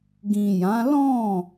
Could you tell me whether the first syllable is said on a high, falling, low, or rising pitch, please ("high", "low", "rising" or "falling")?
low